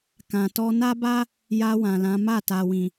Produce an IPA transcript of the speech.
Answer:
k ã˨ t ɔ˧ n a˦ b a˦ | j a˧ w ã˨ l ã˨˦ m a˦˨ t a˨ w ĩ˨

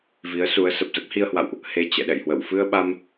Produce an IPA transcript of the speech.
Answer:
v i˨˦ ə̯ s u˨˦ ə̯ s ə˨˩ p̚ z ə˦˥ p̚ h i˧ ə̯ h w a̰˧˨ w ʔ | h e˧ t͡ɕ ɛ̰˧˨ ɗ ɛ̰˧˨ j h w ə̰˧˨ w f ɨ˧ ə̯ ɓ a˧ m

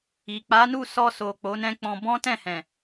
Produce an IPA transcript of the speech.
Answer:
i˨ k͡p a˨˦ n u˦˨ s ɔ˧ s o˨ k͡p o˨˦ n ɛ̃˦ k͡p ɔ̃˧ b ɔ̃˦ t ɛ̃˦˨ h ɛ̃˨

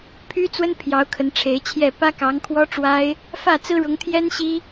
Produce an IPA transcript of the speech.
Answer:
pʰ y˥ t͡s w ə˥ n pʰ j ɑ˧˥ ʊ̯ kʰ ə˧˥ n ʈ͡ʂʰ e˧˥ ɪ̯ t͡ɕʰ j ɛ˥˩ p ä˥ k ɑ˧˥ ŋ kʰ w ɔ˥ ʈ͡ʂ w a˥ ɪ̯ | f ä˥˩ t͡s ɹ̩˥ ɻ ʊ˧˥ ŋ t̪ʰ j ɛ˥ n ɕ i˥

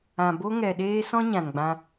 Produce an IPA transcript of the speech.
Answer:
ã˨ b o˦ ŋ ɛ˨ ɗ eː˦ s ɔ̃˦ ɲ ã˨ n ɡ͡b ã˧

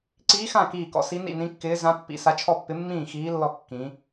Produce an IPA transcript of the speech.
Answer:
ǀ iː˧˥ x ã˥˨ k iː˥˨ k ɔ̰˧˥ s i˧˥ n ḭ˥˨ n ĩ˧˥ kː ɪː˧˥ z ã˧˥ pː ḭ˧˥ s a˧˥ t͡ʃʰ ɔ˥˨ pː ɪ˧˥ mː ĩː˥˨ x iː˧˥ lː ɔ˥˨ kː ĩ˧˥

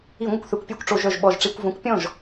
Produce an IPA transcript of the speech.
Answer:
i˧˩˧ ŋʷ ə˧ kʷ θ ø˧ kʷ pʲ œ˥˧ kʷ ʈ͡ʂ o˧˩˧ ʒ œ˧˩ ʒ ɓ ɔ˧˩ ʒ ʈ͡ʂ i˧˩˧ kʷ v õ˨˥ kʷ pʲ ɔ̃˥˩ ʒ

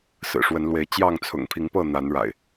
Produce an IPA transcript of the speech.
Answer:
s ɹ̩˨˩ ʂ w ə˨˦ n l w e˨˦ ɪ̯ t͡ɕ j ɑ˥˨ ŋ t͡sʰ ʊ̰˨˩ ŋ pʰ i˨˦ ŋ p ɤ˥˨ n̪ a˨˦ n ɻ a̰˨˩ ɪ̯

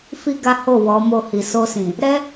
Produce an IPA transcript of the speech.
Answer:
f i˧ ɡ a˦ h o˦˨ w ɔ˨˦ m o˧ h i˨ s o˧ s ĩ˨ | ɾ ɛ˦

